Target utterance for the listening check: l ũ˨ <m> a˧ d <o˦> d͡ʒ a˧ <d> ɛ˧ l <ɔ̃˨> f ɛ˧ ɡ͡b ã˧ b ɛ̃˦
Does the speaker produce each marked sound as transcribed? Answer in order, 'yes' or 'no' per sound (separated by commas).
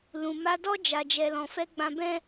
yes, no, no, no